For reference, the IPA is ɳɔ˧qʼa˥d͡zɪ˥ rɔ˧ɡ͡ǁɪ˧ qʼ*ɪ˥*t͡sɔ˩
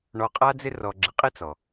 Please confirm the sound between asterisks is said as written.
yes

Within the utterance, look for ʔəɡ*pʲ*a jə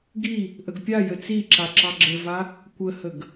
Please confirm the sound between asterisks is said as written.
yes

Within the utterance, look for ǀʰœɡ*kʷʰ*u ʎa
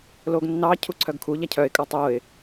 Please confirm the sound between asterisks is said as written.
no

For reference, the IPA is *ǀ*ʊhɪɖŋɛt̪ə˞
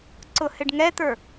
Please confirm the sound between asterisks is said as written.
yes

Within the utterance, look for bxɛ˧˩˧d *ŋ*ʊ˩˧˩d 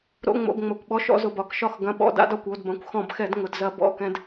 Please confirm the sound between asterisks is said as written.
yes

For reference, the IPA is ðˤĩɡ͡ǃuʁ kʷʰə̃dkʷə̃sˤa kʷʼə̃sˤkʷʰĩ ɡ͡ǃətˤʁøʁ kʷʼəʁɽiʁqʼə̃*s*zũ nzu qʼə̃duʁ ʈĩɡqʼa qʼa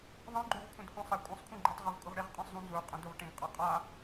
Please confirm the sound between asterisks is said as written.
no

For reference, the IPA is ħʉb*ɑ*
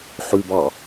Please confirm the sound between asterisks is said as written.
yes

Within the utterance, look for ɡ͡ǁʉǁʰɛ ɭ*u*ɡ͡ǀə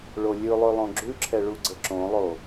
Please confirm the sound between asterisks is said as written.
yes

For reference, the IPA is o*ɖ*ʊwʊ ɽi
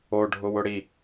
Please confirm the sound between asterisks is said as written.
no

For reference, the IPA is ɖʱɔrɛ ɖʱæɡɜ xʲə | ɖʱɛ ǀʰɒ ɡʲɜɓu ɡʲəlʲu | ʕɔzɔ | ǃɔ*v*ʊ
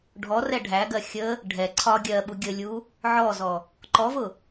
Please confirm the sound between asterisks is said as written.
yes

